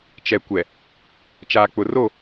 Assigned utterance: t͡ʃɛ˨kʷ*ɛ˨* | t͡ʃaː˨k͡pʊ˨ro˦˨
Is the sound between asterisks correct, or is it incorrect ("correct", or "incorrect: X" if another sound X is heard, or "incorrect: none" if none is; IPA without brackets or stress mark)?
correct